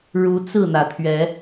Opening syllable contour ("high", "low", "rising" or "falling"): rising